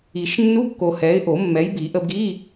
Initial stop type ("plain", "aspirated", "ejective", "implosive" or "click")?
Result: plain